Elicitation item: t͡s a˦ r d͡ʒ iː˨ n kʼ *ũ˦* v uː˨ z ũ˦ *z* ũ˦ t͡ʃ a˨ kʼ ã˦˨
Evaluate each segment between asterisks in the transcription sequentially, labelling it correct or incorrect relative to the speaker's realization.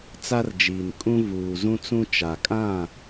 correct, incorrect: t͡s

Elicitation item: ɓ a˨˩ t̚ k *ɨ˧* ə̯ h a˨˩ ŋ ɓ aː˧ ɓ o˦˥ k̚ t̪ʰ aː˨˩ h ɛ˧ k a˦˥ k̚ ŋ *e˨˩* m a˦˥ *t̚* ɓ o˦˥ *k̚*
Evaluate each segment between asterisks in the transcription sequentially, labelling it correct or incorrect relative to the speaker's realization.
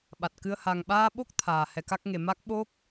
correct, correct, incorrect: k̚, correct

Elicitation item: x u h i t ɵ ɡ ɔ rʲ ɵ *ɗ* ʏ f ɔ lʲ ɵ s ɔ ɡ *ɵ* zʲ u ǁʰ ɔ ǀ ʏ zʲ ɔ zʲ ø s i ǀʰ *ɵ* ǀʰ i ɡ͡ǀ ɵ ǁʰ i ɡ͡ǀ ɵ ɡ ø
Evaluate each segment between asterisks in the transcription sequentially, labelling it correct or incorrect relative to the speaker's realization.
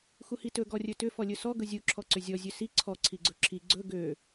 incorrect: t, correct, incorrect: ɔ

